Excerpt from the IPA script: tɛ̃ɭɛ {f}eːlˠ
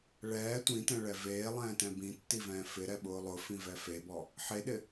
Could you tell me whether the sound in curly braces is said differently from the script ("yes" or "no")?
yes